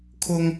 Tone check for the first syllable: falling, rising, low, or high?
high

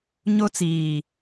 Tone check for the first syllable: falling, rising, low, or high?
high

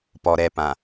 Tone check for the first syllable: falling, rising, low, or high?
low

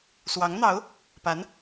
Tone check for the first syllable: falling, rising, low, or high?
rising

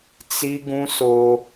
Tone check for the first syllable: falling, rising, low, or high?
high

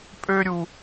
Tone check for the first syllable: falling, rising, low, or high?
high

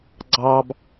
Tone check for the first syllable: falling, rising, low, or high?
high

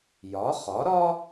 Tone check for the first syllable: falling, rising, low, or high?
rising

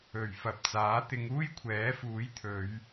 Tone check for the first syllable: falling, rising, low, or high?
low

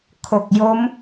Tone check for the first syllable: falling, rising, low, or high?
low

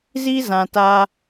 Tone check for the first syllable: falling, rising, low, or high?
high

